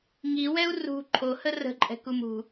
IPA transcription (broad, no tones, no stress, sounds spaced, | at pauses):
ŋ i w ɛ u̯ r ṳ ǃʰ o h ə r ə̤ ǃʼ ɛ̤ k u m ṳ